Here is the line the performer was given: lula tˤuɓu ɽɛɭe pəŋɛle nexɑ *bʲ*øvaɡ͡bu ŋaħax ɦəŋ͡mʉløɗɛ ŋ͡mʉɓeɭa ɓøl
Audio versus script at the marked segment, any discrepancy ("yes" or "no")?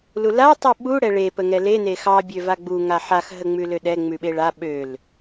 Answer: no